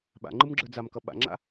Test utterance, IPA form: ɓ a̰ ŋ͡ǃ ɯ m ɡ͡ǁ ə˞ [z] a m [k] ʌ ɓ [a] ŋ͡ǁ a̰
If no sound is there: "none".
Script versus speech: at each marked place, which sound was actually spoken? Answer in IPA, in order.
d͡z, k, a̰

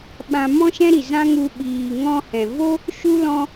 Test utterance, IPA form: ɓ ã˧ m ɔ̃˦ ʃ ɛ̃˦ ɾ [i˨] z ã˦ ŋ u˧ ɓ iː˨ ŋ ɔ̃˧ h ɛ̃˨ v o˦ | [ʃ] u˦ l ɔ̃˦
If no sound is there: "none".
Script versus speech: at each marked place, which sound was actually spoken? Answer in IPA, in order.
i˨, ʃ

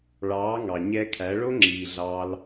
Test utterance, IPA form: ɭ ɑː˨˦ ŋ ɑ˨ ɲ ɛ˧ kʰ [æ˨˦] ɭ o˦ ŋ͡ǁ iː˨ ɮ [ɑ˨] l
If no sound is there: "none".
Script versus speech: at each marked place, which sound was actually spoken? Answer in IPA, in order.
æ˨˦, ɑ˦

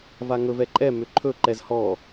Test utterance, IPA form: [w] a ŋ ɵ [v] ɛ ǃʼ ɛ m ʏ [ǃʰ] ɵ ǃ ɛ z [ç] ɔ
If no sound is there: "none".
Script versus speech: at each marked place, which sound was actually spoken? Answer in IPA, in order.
v, v, ǃʰ, h

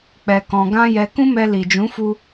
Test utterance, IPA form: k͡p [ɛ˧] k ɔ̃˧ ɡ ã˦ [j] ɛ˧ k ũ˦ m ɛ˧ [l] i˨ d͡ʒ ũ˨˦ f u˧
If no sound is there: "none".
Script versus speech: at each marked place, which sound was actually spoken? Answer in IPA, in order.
ɛ˧, j, l

